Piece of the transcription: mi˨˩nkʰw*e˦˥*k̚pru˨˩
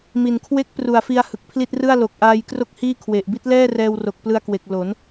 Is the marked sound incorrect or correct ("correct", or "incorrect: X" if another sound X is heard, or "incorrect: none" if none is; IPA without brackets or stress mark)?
correct